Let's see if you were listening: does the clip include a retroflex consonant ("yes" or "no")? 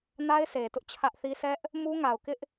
no